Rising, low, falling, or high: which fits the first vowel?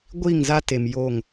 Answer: falling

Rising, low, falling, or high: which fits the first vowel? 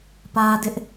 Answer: high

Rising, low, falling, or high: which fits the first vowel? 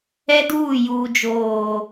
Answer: high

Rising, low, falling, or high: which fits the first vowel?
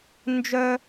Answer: high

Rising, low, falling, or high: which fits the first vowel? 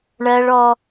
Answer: high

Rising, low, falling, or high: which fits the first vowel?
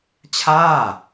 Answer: falling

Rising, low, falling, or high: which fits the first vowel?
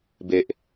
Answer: low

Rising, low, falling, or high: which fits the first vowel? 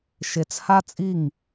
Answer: low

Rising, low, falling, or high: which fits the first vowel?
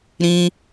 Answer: high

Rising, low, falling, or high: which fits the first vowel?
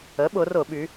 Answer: rising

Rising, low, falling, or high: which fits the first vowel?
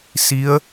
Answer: rising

